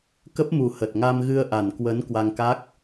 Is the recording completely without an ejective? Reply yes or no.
yes